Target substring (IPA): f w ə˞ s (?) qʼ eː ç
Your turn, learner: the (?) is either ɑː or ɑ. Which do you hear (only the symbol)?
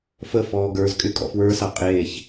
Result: ɑ